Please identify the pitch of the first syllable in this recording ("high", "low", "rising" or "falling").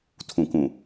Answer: low